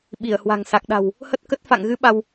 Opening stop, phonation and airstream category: implosive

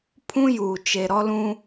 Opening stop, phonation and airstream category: aspirated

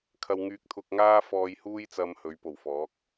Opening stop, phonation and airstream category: aspirated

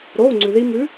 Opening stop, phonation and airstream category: click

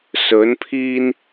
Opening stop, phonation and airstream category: aspirated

